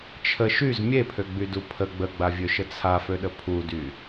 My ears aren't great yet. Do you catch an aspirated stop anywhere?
yes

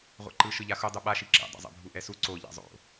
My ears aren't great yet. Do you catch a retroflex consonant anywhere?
no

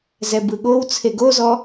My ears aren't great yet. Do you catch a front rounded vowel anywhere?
no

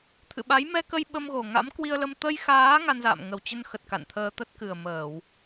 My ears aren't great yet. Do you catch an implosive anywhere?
yes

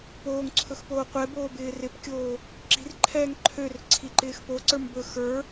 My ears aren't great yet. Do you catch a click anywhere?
yes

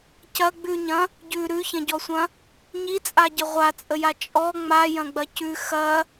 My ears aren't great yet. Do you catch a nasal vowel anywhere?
yes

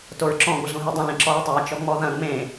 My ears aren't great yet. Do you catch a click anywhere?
yes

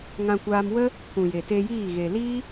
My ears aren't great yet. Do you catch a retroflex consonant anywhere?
no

